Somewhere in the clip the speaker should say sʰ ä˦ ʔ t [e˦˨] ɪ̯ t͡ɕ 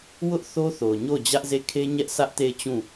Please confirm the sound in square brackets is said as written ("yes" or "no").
yes